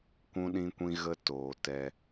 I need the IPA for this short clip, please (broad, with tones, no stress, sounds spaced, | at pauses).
kʷ ũ˦ ɗ ĩ˦ kʷ ĩ˦ ɣ ə˦ t oː˨ t ɛ˧